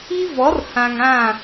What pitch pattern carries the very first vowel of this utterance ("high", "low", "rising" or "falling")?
high